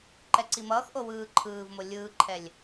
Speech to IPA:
ǃ ɛ ǀ i m ʌː x ʔ o w ɯː ǃʰ ɯː v m o lʲ ɯː ǃʰ ɛ lʲ

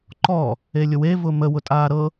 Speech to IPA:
ǃ ɔ | e lʲ ʊ w e v ʊ m ə w ʊ tʼ aː ɾ ɤ

